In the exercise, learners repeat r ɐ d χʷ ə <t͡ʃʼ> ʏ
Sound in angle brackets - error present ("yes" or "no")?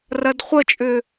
no